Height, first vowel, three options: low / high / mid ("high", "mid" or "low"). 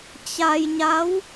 low